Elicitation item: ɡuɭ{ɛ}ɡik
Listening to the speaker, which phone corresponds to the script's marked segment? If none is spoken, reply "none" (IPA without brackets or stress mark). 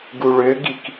ø